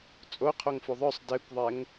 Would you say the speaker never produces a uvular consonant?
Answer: no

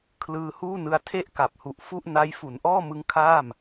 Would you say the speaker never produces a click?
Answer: yes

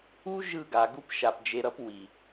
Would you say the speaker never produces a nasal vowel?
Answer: yes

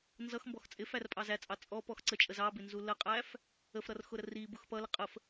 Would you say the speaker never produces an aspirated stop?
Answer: yes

